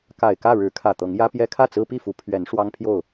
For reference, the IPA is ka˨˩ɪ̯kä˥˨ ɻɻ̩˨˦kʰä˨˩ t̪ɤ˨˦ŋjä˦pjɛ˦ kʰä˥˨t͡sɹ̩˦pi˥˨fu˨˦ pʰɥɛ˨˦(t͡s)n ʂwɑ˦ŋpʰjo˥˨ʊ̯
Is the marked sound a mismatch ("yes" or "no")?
yes